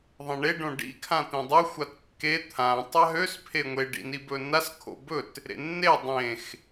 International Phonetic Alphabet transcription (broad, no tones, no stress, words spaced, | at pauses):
ðˤẽɳe ɖõɖḭ kʰãt̪ẽdˤø xʷatkːe t̪ʰã tˤaɦøs pʰeŋʷe ɖḭnibɵnas kʰo̰bɵt | ɾḛnːe dˤẽx